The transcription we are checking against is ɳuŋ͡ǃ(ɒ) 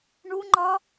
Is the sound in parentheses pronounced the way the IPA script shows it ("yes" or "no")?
yes